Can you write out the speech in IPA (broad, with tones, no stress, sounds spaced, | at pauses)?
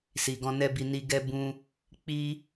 s i˨ ɡ ɔ̃˧ n ɛ˦ b i˧ n i˧ ɡ ɛ˦ b ũ˧ | k͡p i˦